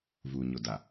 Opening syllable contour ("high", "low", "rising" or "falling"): low